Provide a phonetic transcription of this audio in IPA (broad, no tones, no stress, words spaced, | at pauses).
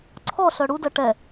ǀʰɔɬœ ɽudɜ ʈɛ